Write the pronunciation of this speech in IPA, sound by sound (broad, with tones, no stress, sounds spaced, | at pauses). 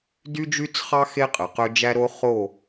d y˦ d͡ʒ y˦ t͡s χ ɑ˦ x e˦ qʼ ɯ˨ q ø˦ d͡ʒ æ˦ ɾ o˦ χ o˦˨